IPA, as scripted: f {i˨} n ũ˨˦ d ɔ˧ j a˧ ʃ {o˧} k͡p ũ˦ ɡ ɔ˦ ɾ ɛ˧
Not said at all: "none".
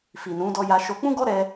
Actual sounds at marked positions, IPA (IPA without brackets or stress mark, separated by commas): i˨, o˧